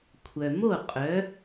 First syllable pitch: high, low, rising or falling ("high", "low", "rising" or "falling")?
low